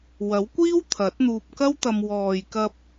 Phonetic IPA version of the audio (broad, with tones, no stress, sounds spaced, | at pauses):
w ɐ˨˥ w kʷ iː˥ w t̪ʰ ɐ˨˥ t̚ n̪ uː˧ p̚ k ɐ˥ w t̪ ɐ˧ m w ɔː˨ j k ɐ˧ p̚